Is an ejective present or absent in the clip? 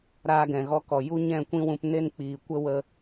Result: absent